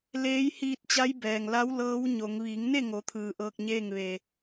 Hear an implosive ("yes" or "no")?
no